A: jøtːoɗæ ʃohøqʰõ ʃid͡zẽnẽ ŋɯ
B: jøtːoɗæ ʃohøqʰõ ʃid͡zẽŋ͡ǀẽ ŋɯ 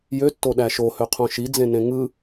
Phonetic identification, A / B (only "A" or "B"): A